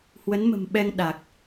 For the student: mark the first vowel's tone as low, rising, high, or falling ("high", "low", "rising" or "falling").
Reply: rising